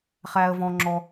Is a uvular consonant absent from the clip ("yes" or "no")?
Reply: no